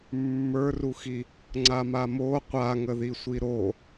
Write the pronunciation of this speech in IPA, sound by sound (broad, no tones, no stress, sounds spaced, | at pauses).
mː ə˞ r u x i | ŋ͡ǀ a m a m o qʷ a ŋ ə ð i sʷ i ɾ o